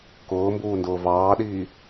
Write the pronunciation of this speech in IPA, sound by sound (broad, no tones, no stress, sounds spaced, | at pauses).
k ʊː m b uː n d ʊː v ɑː ɗ iː